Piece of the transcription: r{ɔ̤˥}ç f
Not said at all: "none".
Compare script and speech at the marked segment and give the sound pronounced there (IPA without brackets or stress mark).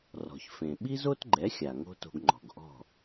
ɔ̤˩